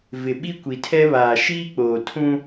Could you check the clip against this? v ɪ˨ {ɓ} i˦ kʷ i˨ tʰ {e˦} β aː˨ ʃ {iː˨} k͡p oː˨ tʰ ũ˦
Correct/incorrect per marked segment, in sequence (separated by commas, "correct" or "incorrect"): correct, incorrect, incorrect